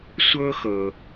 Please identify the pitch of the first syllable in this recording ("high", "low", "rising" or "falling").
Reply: high